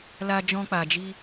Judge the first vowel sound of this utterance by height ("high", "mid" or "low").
low